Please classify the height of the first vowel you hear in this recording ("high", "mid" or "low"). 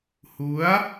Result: high